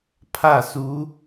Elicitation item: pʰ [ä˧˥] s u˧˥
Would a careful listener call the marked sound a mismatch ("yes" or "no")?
yes